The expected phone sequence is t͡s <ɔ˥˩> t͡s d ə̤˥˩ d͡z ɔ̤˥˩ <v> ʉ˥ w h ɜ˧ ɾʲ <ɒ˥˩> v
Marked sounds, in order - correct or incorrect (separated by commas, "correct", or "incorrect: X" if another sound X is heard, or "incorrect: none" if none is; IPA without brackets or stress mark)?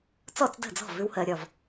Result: correct, correct, correct